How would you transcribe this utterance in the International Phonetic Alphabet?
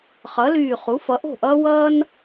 χ ʌ˩˥ l yː˧˩ χ u˩˥ f ʌ˩˥ ʔ o̤˥˩ ʔ ʌː˥ w ʌː˥ n

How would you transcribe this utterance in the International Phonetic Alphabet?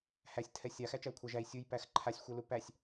h æ sʲ tʰ ɛ sʲ a x æ t͡ʃ æ u̯ kʷʰ a ʒ æ i̯ sʲ u j p æ x ǃʰ a sʲ xʷ ɛ l u p æ sʲ

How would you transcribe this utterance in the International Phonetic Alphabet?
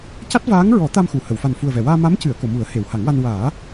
c a˦˥ t̚ v aː˧˥ ŋ ɹ ɔ˨˩˦ t̪ a˧ m x u˨˩˨ h ə˨˩˨ w f a˨˩ n f u˨˩ ə̯ v ɛ˨˩˨ w aː˧ m a˧˥ m c ɨ˨˩˨ ə̯ k o˨˩˨ m u˨˩˦ ə̯ h e˨˩˨ w h a˨˩˦ ŋ w a˧ n w aː˨˩˦

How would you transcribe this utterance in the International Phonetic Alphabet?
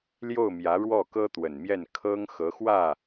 l j o˥˩ ʊ̯ m j ä˧˥ ɻ w ɔ˥˩ k ɤ˥ t̪ w ə˨˩ n m j ɛ˥˩ n kʰ ɤ˥ ŋ x ɤ˧˥ x w ä˥˩

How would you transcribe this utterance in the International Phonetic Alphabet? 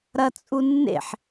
ɾ ɐ t͡sʼ u nː ḛ ħ

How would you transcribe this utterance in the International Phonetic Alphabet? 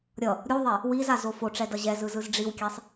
ɾʲ ʌ | ɾʲ u ðˤ ɛ | w i z a z o f o ʈ͡ʂ ɛ d ʌ ʑ ɛ z ɯ z ɯ z ɖ͡ʐ i w kʲ ɛ sˤ

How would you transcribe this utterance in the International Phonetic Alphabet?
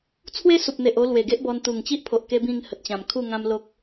t͡sʰ w e˦ s u˨ p̚ n̪ e˨ ʔ o˧ l w e˨˩ ɡ e˦ ʔ b ɔ˧ n t̪ u˨˩ ŋ t͡ɕ i˦ ʔ pʰ o˨ ʔ k e˦ b ĩ˥˧ ŋ h ə˨ t̚ t͡ɕ ã˨˩ m kʰ u˥˧ ŋ ã˦ m l o˦ k̚

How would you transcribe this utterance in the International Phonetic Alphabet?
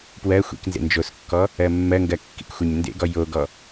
p w ɜ xʷ ḭ k n z ḛ n d͡ʒ o s kː ɔ | ɜ mː ɜ ŋ ɡ ɜ kː ḭ k xʷ ɛ ɲ n d ḛ ɡ ɔ j o ɡ ɔ

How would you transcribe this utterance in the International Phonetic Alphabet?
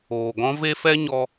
oː˨ ɡ ɔ̃˦ v e˦ f ɛ˦ ɲ ɔ˧

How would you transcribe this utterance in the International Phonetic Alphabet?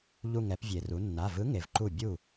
ʎ u˧˩ ŋ ɛ˩˧ p vʲ e˩ r u˩˧ nː a˩˧˩ v ɯ˨˥ ŋ e˩ v ǃ u˧˩ bʲ u˥˩

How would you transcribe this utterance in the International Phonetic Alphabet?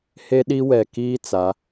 h e˦ ɗ i˦ w ɛ˨ k iː˦ t͡s a˨˦

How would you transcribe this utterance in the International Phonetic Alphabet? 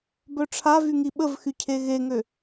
b œ ʈ͡ʂʰ a v y ŋ i ɓ ə v x y cʰ e ɣ e ŋ ø

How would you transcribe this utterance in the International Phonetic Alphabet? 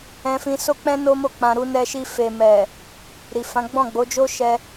ɛ̃˧ f ĩ˧ s o˦ k͡p ɛ̃˦ n o˦ m o˦˨ k͡p ã˧ ɾ u˧ n ɛ˧ ʃ i˧ f e˨ m ɛ˨ | ɾ i˨ f ã˨˦ ɡ͡b ɔ̃˦˨ ɡ͡b o˨˦ d͡ʒ o˦ ʃ ɛ˧

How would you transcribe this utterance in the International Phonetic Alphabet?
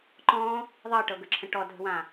ǃ ɔ̃ | ðˤ ɤ ʈ ɤ ɡ ə ǁʰ ə̃ ʈ ɔ dʱ ə̤ w ã

